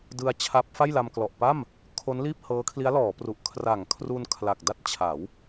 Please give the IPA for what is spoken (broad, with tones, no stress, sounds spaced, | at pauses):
d ɯ˧ a̯ t͡ɕʰ a˦˥ p̚ f a˥˩ j l a˧ m k l ɔ˨˩ ʔ p a˥˩ m | kʰ o˦˥ n l iː˥˩ p̚ h ɤː˦˥ kʰ l i˦˥ a̯ l ɔː˩˦ p r u˨˩ ʔ kʰ r a˩˦ ŋ kʰ r u˧ n kʰ l a˨˩ k̚ d a˥˩ t̚ t͡ɕʰ a˩˦ w